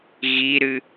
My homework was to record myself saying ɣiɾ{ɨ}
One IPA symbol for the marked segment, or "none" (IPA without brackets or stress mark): ɨ